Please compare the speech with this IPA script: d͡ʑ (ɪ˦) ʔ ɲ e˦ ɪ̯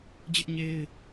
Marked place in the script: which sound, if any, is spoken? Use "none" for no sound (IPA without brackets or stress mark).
ɪ˦